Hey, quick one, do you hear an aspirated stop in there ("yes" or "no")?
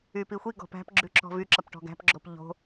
no